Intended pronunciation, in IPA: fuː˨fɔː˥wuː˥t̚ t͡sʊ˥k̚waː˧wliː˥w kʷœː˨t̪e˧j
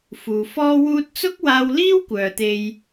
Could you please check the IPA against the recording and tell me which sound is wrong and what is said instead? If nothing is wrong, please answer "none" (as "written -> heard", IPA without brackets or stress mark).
none